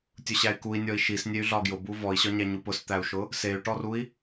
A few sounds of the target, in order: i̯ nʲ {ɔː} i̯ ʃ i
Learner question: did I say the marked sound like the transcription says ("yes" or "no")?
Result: no